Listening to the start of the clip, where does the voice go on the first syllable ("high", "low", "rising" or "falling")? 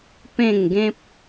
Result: falling